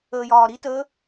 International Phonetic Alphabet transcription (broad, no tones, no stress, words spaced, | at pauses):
əːjɒːɾitəː